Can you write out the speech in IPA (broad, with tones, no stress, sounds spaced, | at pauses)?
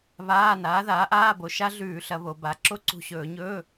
β aː˧˥˧ n aː˩˥ ð aː˩˥ ʔ aː˧˥˧ b o˩˧ ʃ a˦˥ ɮ ʉː˧˩˧ ɬ ɐ˩˧ β o˩˧ b a˩˧ ǁ o˦˥ ǀ ṳ˧˩ ɕ ɵː˧˩˧ ɲ ɵː˧˥˧